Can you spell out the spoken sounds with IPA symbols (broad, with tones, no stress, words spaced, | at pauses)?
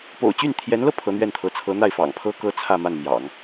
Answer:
po̰˨˩ʊ̯t͡ɕy˥˩nt̪ʰjɛ˧˥nlɤ˧ pʰɤ˧˥n̪ɥɛ˥˩nt̪ʰɤ˧˥ t͡sʰɤ˧˥n̪a˥˩ɪ̯fɑ̰˨˩ŋ pʰɤ˥ kɤ˥t͡sʰä˥˧ma˥˩nmjɑ̰˨˩˦ŋ